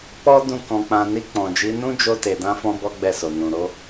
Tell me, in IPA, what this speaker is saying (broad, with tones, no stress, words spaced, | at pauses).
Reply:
k͡pɔ˦ dũ˦˨ kɔ̃˧k͡pã˧ ni˧k͡pɔ̃˨d͡ʒi˨˦ nũ˦d͡ʒo˧ te˨dã˧fɔ̃˧ bɔ˦ɡ͡bɛ˦˨so˨ nũ˨ ɾo˨˦